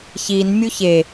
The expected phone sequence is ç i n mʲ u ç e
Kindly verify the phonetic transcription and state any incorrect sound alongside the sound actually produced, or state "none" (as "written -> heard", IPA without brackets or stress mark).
none